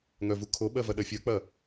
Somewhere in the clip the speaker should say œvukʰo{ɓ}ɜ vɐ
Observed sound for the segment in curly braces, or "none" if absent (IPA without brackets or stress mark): ɓ